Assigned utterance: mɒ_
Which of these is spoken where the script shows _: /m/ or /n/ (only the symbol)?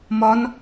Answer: n